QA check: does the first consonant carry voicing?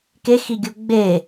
no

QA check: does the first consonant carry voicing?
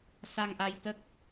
no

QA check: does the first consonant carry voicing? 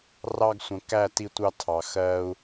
yes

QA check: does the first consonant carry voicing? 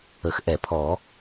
no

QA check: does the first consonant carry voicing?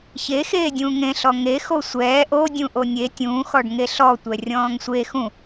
no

